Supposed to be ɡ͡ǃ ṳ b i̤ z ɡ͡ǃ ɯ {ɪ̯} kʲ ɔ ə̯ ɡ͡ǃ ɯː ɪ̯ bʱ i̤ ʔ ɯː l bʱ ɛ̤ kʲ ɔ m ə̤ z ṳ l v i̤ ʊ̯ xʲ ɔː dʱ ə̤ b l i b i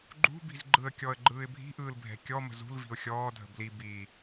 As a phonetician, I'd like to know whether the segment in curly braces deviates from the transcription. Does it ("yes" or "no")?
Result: yes